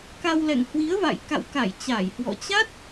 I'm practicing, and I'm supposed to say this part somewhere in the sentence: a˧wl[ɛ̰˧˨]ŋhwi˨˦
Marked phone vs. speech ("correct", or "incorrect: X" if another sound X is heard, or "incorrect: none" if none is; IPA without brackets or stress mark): correct